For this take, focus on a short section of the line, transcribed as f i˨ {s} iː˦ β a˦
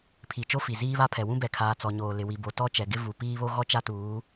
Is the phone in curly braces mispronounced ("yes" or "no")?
yes